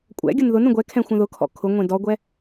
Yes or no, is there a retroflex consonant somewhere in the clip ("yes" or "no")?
no